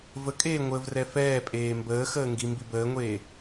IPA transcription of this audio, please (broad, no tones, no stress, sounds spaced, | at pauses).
v ə kʼ eː ŋʷ əː v r ɛ f ɛː pʼ eː m b əː x əː ŋ ɡ i m b i b əː ŋʷ eː